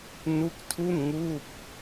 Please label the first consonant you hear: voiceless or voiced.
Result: voiced